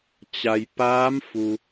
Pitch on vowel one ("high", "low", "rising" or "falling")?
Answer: low